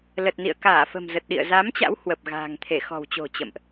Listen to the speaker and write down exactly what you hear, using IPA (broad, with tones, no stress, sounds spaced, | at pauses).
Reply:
l ə˨˩ t̚ n ḭ˧˨ ə̯ k aː˧˩ f ə̤˨˩ m z ə˨˩ t̚ ɗ ḭ˧˨ ə̯ z a˨˦ m t͡ɕ a̰˧˥ w h w ə˨˩ p̚ ɣ a̤ː˨˩ ŋ t̪ʰ e˧˩ x ɔ̤˨˩ w t͡ɕ o̤˨˩ t͡ɕ ə̰˧˨ m ʔ